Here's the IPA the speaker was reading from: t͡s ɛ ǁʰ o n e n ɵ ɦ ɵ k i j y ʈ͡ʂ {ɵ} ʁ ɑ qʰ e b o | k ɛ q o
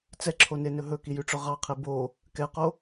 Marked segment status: correct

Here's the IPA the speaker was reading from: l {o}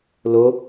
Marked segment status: correct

